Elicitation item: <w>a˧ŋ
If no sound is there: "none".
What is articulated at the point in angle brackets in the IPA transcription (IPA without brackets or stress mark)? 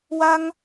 w